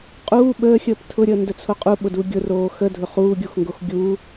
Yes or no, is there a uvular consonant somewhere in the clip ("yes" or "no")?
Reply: yes